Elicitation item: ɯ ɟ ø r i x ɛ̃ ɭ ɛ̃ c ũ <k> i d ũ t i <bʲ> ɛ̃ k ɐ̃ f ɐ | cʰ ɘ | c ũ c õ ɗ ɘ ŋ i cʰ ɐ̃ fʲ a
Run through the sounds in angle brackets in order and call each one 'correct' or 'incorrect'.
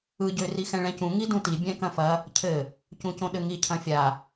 incorrect: ŋ, correct

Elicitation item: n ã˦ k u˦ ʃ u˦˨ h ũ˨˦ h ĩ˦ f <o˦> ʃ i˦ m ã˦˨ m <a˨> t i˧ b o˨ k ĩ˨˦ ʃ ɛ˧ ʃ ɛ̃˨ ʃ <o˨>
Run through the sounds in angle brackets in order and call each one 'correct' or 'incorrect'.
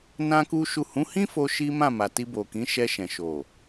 correct, correct, correct

